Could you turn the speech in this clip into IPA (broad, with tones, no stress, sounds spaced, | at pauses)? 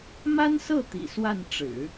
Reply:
m a˥ n s ɤ˥˩ t̪ ḭ˨˩ s w a˥˩ n ʈ͡ʂ ɻ̩˨˩˦